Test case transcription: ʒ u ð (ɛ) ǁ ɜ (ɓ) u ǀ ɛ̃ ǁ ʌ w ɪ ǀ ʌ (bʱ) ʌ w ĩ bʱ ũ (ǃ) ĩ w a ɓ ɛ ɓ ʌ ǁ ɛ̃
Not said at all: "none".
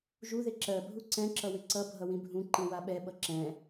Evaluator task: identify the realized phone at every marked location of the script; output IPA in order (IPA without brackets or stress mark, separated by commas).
ɪ, bʱ, bʱ, ǃ